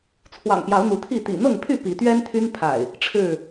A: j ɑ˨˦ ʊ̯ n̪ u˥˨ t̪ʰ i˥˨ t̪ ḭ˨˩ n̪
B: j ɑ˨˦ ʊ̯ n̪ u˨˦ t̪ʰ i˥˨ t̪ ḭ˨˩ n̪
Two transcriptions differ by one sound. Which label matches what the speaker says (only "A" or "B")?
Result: B